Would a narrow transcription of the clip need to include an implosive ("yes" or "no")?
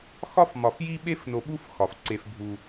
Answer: yes